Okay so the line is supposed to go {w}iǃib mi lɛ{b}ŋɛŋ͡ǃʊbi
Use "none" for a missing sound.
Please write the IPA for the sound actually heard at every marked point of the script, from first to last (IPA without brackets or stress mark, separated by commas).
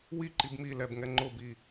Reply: w, b